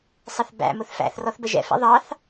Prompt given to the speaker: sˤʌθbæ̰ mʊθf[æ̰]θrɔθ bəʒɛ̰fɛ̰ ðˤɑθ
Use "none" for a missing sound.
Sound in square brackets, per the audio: æ̰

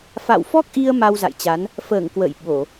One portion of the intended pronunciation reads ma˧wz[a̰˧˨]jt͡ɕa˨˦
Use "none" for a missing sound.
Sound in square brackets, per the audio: a̰˧˨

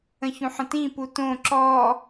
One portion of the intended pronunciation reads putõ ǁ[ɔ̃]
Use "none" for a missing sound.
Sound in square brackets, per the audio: ɔ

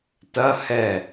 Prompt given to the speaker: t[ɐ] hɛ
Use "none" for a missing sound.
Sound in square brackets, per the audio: ɐ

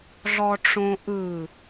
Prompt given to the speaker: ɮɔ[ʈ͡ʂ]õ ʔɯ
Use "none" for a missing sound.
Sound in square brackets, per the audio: ʈ͡ʂ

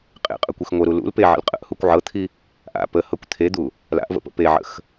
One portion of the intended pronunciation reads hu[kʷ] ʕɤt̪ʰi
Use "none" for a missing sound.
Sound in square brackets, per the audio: kʷ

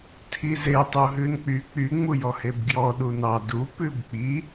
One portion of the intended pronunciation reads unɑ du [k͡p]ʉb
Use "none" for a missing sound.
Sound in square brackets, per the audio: p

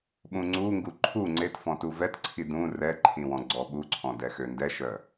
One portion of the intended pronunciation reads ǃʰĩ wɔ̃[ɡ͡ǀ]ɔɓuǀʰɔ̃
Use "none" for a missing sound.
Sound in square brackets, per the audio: ɡ͡ǀ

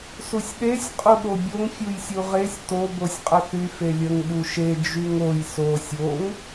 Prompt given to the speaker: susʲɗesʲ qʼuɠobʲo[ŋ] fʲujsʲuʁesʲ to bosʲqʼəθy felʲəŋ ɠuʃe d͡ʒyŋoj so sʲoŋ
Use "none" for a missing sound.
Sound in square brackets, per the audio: ŋ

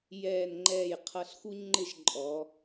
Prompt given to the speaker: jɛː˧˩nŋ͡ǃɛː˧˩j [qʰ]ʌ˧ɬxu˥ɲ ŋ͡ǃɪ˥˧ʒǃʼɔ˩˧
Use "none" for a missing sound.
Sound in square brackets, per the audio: qʰ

